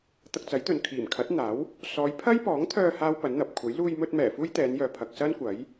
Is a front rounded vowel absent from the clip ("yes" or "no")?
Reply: no